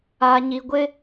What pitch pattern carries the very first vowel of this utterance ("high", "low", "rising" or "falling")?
low